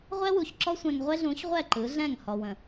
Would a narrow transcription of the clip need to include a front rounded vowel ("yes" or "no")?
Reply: no